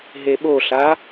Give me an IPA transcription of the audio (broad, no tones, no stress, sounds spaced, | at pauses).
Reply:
ɦ e ɓ o ɬ a